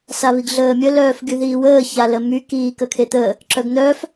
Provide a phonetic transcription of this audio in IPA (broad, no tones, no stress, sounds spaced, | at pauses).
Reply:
s a β i ɡ ɮ əː mʲ ə l œː f ɡ y ð iː w əː ç a l ə m y k iː k ə kʰ e t̪ əː | ǁ œ ɡ n̪ œː f